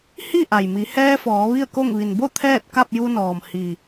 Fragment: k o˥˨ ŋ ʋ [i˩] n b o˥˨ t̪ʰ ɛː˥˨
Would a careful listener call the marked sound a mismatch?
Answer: no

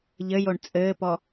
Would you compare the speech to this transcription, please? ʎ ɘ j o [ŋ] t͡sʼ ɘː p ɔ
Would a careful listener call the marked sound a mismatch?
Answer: yes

